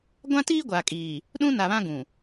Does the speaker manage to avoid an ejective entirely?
no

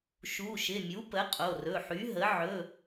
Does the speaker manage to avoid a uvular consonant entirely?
no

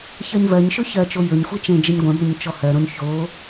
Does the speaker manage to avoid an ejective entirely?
yes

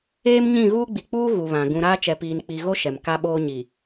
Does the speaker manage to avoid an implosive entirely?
no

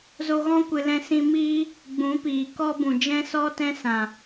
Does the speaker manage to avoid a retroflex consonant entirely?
yes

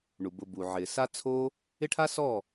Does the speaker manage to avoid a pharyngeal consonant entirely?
no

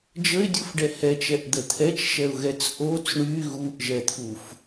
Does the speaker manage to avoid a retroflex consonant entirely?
no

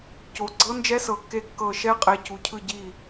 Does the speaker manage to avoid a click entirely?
no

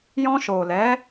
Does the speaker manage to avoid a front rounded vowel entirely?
yes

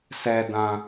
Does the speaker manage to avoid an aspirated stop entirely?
yes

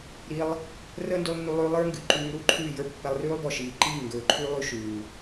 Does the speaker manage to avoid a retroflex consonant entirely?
yes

